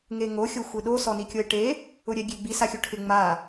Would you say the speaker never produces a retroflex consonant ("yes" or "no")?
no